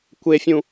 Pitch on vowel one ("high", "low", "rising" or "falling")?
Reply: high